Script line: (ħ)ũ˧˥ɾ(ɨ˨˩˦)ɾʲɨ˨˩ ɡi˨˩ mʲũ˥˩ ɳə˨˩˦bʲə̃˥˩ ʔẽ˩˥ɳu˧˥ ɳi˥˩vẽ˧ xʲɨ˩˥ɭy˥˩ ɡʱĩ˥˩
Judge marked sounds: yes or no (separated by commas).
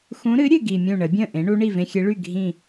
no, no